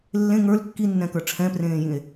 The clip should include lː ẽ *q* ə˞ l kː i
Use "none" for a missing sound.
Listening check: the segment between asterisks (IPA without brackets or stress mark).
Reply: ŋ